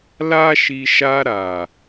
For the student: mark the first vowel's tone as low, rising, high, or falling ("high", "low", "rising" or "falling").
high